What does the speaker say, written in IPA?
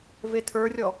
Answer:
vetʰə˞rʲɔ

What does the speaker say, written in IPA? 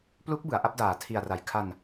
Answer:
plu˦˥k̚ bɯ˩˦a̯ʔa˥˩p̚daː˨˩ tʰi˨˩a̯ra˨˩jkʰa˧n

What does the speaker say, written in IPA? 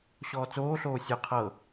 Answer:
ɕɔːt͡soːɬoː sʲɯ qʰɤ

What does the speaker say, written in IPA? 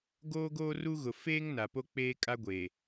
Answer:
ɡoː˦ɡoː˦ru˦ɣʊ˨ feː˦ŋ na˨po˦ k͡peː˦kʼa˦ɡʷe˨

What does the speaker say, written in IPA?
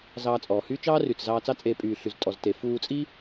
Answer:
zɑː˧t͡sʼɔː˨hyː˦ t͡ʃɑː˦ry˨t͡s zɑː˧t͡sɑ˦t͡sʼeː˧ pʼyː˨ɬy˨z tʼɔ˨zte˨ fuː˧t͡sʼi˦

